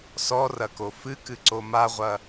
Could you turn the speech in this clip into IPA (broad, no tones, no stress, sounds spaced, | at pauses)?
s ɔ r ɐ k o f ɨ k ɨ ǀ o m a ʁʷ ɐ